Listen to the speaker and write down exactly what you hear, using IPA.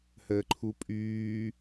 h əː ǃʰ u pʼ yː

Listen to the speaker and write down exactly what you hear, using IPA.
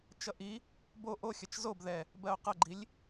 t͡ʃ ʌ ʔ i | b o ʔ o xʲ ʌ t͡ʃ z o b ð ɛ | b ɜ o̯ q ʌ ɡ͡ǃ i lʲ

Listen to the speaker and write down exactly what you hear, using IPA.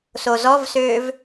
s o z ɔ v s ø v

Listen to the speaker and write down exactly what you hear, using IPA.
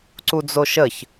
ǀ u d͡z o ʃ ə ç

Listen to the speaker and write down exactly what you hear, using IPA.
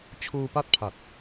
t͡ɕʰ uː˧ p a˦˥ t̚ pʰ a˨˩ t̚

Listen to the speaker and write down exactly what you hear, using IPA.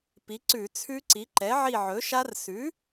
p i˩˥ ǀ ʉ˧˩˧ t͡sʰ ʉ˦˥ ǀ i˩˥ ǃ ɛ˩˥ ʕ i˦˨ ʕ ɵ˩˥ ʃ a˦˥ r s ʉ˩˥

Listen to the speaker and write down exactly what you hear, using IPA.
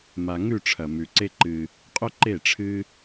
m a˨ ŋ ʉ˦˨ ʈ͡ʂʰ ɐ˨ m ʉ˨ ǀ e˦ ǃ ɨ˧ | qʼ ɵ˦ ǃ e˦˨ ʈ͡ʂʰ ɨ˦

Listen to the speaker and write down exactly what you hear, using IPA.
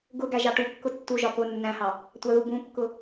ɡ ʊ ɡ æ ʒ ɑ ʈ u kː ʊ tː u ʒ ɒ p ʊ nː æ̃ h ɑ | tʷ ɑ ð u b ũ kː ʊ

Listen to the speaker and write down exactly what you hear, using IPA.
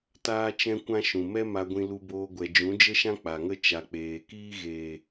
t aː˦ t͡ʃ ɛ̃˦ kʷ ã˦ ʃ ũ˨ m ɛ˦ m a˧ ɡʷ ĩ˧ l u˧ b oː˧ ɡʷ ɛ˨ d͡ʒ ũ˨˦ d͡ʒ ə˦ ʃ ã˦ k͡p a˨ ŋ ə˦ t͡ʃ a˨ k͡p eː˨ k iː˦ ɣ eː˨

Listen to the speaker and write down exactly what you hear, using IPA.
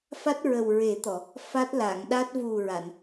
f a˦˥ t̚ ɹ ə˨˩ w ɹ e˨˩˦ t̪ ɔ˨˩˨ | f a˦˥ t̚ l a˨˩˨ ŋ ɗ a˦˥ t̚ v u˨˩ ɹ a˨˩˨ n

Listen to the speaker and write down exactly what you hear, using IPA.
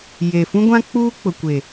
j e˨ f ũ˦ ɡʷ ã˦ k͡p uː˦ k͡p ʊ˨ kʷ e˨

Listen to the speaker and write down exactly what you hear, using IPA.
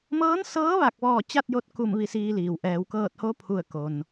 m ɤː˧˥ n s ɤː˧˥ ʋ a˧˩ k̚ ʋ ɔː˧˩ t͡ɕ a˥˨ t̚ j o˧ t̚ k u˧˩ m ʋ i˧ s iː˧ l iː˩ w ʔ ɛː˩˧ w k ɤː˧˩ t̚ h o˧˥ pʰ u˧˩ ə̯ k o˩ n

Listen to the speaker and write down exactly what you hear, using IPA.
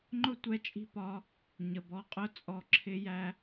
ŋ͡ǃ ʊ˦ tʷ ɛ˧ t͡ʃʼ i̤˧ p ɒ˨˦ | ɲ ə˨ b ɔ˨˦ qʼ ʊ˦˨ t͡sʼ ɔ˨ ǁʰ ɪ˧ j æ˧

